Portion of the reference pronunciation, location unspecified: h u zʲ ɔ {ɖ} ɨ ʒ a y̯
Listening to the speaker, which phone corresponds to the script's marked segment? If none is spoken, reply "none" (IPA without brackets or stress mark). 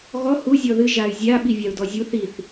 ð